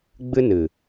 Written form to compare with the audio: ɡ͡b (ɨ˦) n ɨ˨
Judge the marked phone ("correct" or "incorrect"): correct